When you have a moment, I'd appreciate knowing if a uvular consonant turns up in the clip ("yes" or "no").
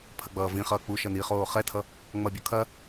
yes